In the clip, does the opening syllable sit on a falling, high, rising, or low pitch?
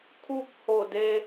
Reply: falling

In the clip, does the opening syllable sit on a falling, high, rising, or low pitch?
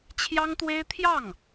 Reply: high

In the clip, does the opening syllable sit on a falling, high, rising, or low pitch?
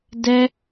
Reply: high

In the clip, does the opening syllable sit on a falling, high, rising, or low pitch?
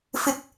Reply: low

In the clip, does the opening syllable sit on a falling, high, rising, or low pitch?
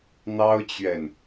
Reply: high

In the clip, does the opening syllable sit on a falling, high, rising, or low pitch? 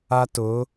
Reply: high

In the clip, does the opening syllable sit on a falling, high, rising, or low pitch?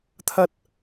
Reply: high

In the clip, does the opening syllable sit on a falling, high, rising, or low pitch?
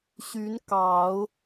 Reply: rising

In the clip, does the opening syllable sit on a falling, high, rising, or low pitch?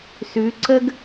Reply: rising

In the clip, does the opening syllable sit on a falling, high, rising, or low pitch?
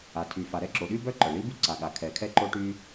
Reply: low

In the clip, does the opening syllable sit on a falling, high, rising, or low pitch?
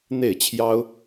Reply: falling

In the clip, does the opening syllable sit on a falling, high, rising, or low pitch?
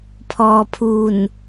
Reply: low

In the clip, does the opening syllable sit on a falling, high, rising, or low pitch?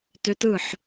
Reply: rising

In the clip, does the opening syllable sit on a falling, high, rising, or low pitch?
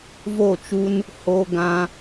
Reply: falling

